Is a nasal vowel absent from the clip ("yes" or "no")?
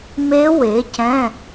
no